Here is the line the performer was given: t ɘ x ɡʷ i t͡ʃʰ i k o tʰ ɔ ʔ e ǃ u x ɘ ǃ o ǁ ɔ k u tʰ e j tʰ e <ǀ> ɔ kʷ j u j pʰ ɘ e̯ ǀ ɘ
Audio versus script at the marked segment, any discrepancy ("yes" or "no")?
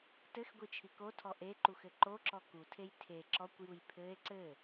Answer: yes